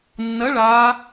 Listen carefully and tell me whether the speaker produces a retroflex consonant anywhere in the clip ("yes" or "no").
yes